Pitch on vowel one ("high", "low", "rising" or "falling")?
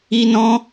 high